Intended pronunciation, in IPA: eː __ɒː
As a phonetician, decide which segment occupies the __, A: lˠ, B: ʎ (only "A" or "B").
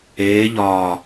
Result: B